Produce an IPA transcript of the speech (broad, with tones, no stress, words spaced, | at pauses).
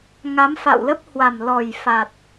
ŋa˨˦mfa̰˧˨wlə˦˥p̚ hwa˨˩mlɔ˨˩j fa˨˩t̚